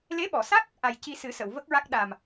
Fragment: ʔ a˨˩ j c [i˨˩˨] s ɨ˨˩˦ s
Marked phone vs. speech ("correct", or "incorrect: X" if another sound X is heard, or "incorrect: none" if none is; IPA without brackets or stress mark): incorrect: i˧